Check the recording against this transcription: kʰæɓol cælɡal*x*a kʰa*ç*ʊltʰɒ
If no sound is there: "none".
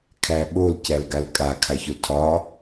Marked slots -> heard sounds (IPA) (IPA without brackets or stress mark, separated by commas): kʼ, ç